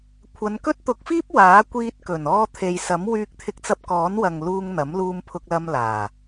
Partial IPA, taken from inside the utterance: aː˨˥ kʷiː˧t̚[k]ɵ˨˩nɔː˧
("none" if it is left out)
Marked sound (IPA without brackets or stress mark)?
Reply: k